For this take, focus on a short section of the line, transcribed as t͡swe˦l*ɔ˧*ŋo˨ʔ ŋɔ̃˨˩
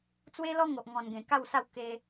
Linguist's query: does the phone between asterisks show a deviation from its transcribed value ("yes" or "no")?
yes